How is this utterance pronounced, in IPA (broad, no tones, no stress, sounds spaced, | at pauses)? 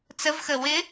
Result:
t͡s ə v x ə w ɪ